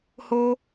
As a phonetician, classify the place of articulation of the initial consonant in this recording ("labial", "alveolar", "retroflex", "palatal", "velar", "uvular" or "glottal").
glottal